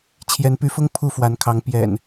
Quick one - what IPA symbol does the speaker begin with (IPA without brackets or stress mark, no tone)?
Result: t͡ɕʰ